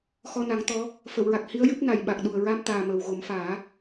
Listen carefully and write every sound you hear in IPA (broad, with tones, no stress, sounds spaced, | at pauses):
x ɔ˧ n a˨˩˦ ŋ t̪ ɔ˧˥ | f ə˨˩˨ w ɹ a˨˩ k̚ h i˧˥ ə̯ j ɨ˦˥ p̚ n a˨˩ j ɓ a˨˩ k̚ ɗ u˨˩ ə̯ ɹ a˧ m t̪ aː˨˩ m əː˨˩ w ɣ o˨˩˦ m f aː˨˩˦